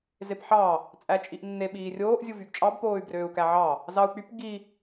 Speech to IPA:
zepħɑ | t͡sʼæt͡ʃʼiʔnːe ɓiːrʲoːʔ zʲuvyɡt͡ʃʼɑb poːy̯brøːu̯kæʕɑ | zɑu̯k͡pyp ɡi

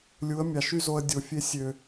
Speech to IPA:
lʲu˨˦ə̯mʲɑ˨ʃy˦zo˧ə̯ dʲo˨fʲe˧ sʲø˨

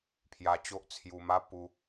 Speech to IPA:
pʰja˧t͡ɕo˦ʔt͡sʰju˧ma˦ pu˧

